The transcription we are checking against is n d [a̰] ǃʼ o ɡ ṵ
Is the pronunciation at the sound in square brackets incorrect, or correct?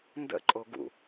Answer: incorrect